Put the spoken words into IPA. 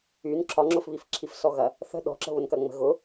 y n ǁʰ ɒ ŋ͡ǁ ʊ f β i f ǁʰ i f s ɔ ɣ ɐ | θ ə̤ ɗ ɔ̤ ǁ ə̤ β ʊ n k ɐ ŋ͡m ə̤ ɣ ʊ

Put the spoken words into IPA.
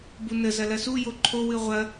b u n ə z ɐ l ɐ s u j o ǃʰ o w ɨ ʁʷ ɐ

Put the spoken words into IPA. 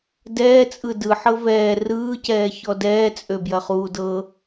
d ɛː t͡sʼ ɯ d ɯ ħ ɤ v ɛː r ɯː c ɛː ç ɔ d ɛː t͡sʼ ø b j ɐ χ uː d ɤ

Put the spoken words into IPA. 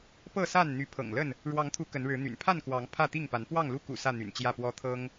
p ɤ˥˨ s a˥˨ n n̪ y˨˦ pʰ ɤ̰˨˩ ŋ l ə˥˨ n | ɻ w ɑ˨˦ ŋ t̪ʰ u˨˦ k ə˨˦ n ɻ ɻ̩˨˦ n̪ y̰˨˩ n pʰ a˥˨ n k w ɑ˨˦ ŋ pʰ ä˥˨ t̪ i˥˨ ŋ p a˨˦ n p w ɑ˥˨ ŋ l u˦ k ṵ˨˩ s ä˥˨ n̪ y̰˨˩ n t͡ɕ j ä˥˨ p w ɔ˦ t̪ʰ ɤ˦ ŋ

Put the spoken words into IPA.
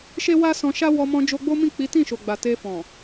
ʃ e˦ w a˦ s ɔ̃˧ ʃ a˦ w ɔ˧ m ɔ̃˧ d͡ʒ o˧ ɡ͡b o˦ m ĩ˦˨ k͡p i˨˦ t ĩ˦˨ ʃ o˨ ɡ͡b a˨ t e˧ f ɔ̃˨

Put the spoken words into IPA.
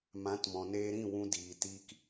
m ã˨˦ t m ɔ̃˨ n eː˧ ɾ ĩ˦˨ w ũ˧ d iː˨ t iː˦ k

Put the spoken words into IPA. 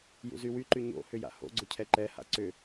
j ṵ z y w y ǃ y ɲ o̰ h ʏ j a̰ h o̰ ɡ͡ǀ ʊ cʰ ɛ ǃ ɛ h a̰ ǀ ʏ

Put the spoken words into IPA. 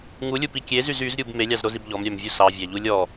ŋ u lʲ u p i kʲ e z y z y z ɾʲ u b m e lʲ ɑ z ɾ o z i b ʎ ɔ m ɾʲ æ m vʲ u s ɑ vʲ æ ʎ u lʲ ɔ

